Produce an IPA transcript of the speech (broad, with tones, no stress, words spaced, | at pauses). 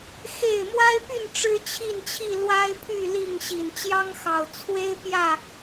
xe˥˨ɪ̯ mwa˦ɪ̯py˥˨n ʈ͡ʂɻ̩˦t͡ɕʰi˥˨nt͡ɕʰi˥˨ lwa˦ɪ̯pʰy˥˨ li˥˨ŋ ɕi˨˩nt͡ɕjɑ˦ŋxɑ˨˩ʊ̯ t͡sʰwe˦ɪ̯ pjä˥˨